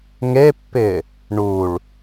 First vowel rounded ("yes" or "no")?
no